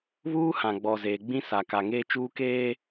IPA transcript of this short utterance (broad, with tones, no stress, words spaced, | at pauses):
βuː˦ hã˨ɡ͡bɔ˨ zeː˨ɡ͡bĩ˦sa˨ ka˨ŋeː˦t͡ʃuː˦keː˦